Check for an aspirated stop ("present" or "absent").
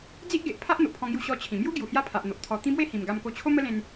present